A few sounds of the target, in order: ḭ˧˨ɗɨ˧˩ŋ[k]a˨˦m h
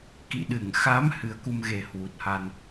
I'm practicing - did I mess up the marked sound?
yes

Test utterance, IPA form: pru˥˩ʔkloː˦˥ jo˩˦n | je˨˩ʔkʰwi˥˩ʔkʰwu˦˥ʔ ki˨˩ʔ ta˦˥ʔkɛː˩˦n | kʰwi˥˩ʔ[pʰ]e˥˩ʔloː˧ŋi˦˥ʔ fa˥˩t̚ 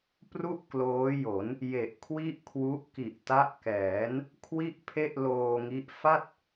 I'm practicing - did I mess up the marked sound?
no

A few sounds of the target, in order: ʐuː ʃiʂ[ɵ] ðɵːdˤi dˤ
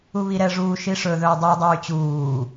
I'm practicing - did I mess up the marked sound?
no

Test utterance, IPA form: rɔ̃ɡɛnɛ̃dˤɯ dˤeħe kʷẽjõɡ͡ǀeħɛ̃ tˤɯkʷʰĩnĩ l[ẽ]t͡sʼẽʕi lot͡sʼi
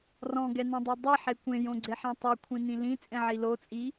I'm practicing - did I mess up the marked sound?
yes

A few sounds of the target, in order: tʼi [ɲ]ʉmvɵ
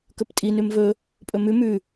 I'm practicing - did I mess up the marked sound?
yes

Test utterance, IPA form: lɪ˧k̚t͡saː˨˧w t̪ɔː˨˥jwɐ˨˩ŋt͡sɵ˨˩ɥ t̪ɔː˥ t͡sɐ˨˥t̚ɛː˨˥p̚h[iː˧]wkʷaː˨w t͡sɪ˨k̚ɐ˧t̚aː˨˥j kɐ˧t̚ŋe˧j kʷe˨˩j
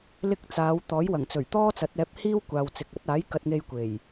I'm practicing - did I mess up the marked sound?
yes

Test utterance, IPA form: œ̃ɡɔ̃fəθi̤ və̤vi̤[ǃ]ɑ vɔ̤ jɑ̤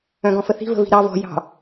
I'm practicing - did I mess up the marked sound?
yes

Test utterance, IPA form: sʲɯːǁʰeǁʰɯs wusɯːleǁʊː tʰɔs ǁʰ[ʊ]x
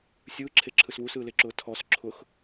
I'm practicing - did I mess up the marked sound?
no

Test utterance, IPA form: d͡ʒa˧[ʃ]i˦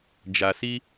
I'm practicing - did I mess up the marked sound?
yes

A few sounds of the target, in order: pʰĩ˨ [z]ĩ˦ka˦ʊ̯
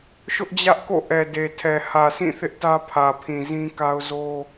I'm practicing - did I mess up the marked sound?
no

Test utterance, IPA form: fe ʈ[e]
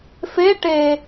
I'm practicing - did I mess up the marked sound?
no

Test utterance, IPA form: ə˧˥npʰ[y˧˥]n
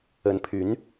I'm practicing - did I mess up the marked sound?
no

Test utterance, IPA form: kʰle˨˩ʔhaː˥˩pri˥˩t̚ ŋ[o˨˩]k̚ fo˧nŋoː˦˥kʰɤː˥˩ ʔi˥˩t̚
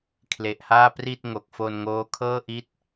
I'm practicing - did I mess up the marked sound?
no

